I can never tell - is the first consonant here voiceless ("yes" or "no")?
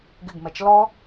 no